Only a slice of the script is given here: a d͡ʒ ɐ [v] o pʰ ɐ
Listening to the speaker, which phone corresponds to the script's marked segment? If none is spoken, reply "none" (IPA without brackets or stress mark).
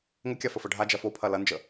f